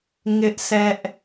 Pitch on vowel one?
high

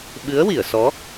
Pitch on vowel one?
rising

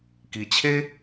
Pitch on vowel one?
low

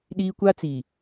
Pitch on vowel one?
high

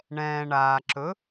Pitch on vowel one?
low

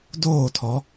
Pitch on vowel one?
falling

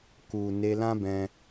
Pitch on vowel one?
low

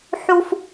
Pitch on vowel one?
high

